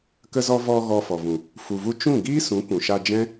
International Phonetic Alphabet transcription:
k ə˧ z ɔ˧ v ɔ˧ ɣ ɔ˧ f ɔ˨ v ũ˨ | f u˨ v u˧ t͡ʃ ũ˦˨ ɡ iː˦ s ũ˨˦ k ũ˨ ʃ a˧ d͡ʒ ɛ̃˦

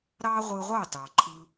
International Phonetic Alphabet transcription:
ɾ ɑ˦ ʁʷ ɯ˧ ʁʷ ɑ˦˨ t ɑ˨ ǃʰ ɯ˧

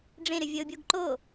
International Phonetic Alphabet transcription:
ɖ͡ʐ ẽ ɾ ʏ vʲ ə ʊ̯ bʲ o ɡ ǃ o

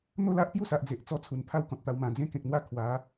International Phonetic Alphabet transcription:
n̪ o˥˧ l a˦ ʔ p j u˥˧ s a˨ ʔ d͡z e˨ ʔ t͡s ɔ˧ t͡sʰ u˨˩ n pʰ a˦ w k ɔ̃˨ t̚ t̪ a˧ w m ã˨˩ d͡z ẽ˧ k ẽ˨ k̚ n̪ w a˧ kʰ w a˨˦

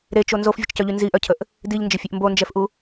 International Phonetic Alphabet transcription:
ɾ e t͡ʃ o n z o f vʲ ə t͡ʃ c œ ʎ y n z i ʔ œ cʰ ə ʔ | d i ʎ n d͡ʒ ə fʲ e ʔ m b o n d͡ʒ ɛ f ʔ u

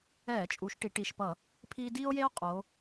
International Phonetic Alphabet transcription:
ɛː˧˩˧ t͡ʃʼ u˩˧ ʃ ʈ i˩˧ ʈ i˨˩ ʃ p ʌ˧˩˧ | pʰ iː˦ d iː˦ o̯ j e˦ o̯ qʼ o˩˧

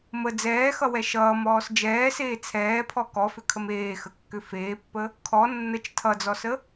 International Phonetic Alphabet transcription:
m ə d͡z ɛː x ʌ w ɛ ʃ ʌː m ɔː s d͡ʒ ɛː s eː t͡sʰ ɛː pʰ ɔ k ɔ f ʏ kʰ ə m eː x ə kː ʏ f eː pː ə | kʰ ɔ nː ə t͡ʃ tʰ ʌ d͡z ɔ s ə

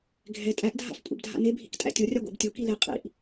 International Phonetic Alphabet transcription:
ɡʱ ɛ tʼ æ ʔ dʱ a̰ f kʷʼ ɛ̰ b dʱ a̰ n e bʱ ḭ k tʼ æ̰ tʲ o rʲ a ɡʷ a̰ b tʲ o k i l e qʼ ḭ ʔ

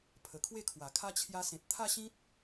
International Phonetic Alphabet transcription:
pʰ ə˨˩ kʰ w e˥˧ kʰ w a˨˩ kʰ a˦ t͡ɕʰ j a˧ s ẽ˨ t̚ t̪ʰ a˥˧ ɕ ĩ˦ t̚

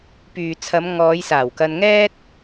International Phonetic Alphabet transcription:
p yː˨ t͡sʰ ɐ˨˧ m ŋ ɔː˨˧ j s aː˨˩ w k ɐ˧ n ŋ ɛː˥ t̚

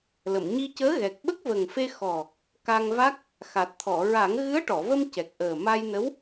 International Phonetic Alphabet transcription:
l ə˨˩˨ m ɲ i˧ c əː˧˥ ɣ ɛ˨˩ k̚ ɓ ə˦˥ k̚ v ə˨˩ ŋ f e˧ x ɔ˨˩ | k a˧ ŋ v a˦˥ k̚ | x a˨˩ t̚ t̪ʰ ɔ˨˩˨ ɹ a˨˩˦ ŋ ɣ ɨ˧˥ ə̯ ʈ ɔ˨˩˨ v ə˧ m c ɛ˨˩ k̚ ʔ əː˨˩ m a˧ j n ə˧˥ w

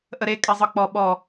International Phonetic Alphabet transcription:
ʔ ə ɾ e kʼ ɛ zˤ ɯ k͡p ɔ ɓ ɔ

